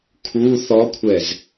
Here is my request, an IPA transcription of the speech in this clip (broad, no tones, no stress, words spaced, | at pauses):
kʰu θɔkʷʰɛz